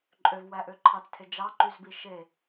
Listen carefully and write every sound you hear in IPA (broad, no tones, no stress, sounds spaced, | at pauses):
ǃʼ ø v w æ ʔ ø ǃʰ ɑ t͡s tʰ e d͡ʒ ɑ ǃ y z b i ʃ e